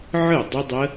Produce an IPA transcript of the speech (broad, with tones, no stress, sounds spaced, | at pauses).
ʕ ɯ˥˨ dˤ ə˦˥ dˤ ə˦˥